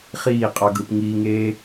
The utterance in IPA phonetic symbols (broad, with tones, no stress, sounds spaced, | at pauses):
χ iː˦˨ qʼ ɑ˧ ɡ ɯ˨ p ŋ iː˧ ŋ eː˦